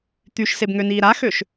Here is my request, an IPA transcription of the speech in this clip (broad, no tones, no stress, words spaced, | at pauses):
t̪yʃsebŋøniː ɾaxøʃ